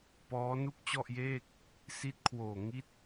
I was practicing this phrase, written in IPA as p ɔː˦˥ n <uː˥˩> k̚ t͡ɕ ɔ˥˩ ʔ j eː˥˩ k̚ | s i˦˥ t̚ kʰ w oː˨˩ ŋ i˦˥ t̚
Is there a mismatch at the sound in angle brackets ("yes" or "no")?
yes